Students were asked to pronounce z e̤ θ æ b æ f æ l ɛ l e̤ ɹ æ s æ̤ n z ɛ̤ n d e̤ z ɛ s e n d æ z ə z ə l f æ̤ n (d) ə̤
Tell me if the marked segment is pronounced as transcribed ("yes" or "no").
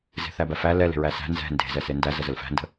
yes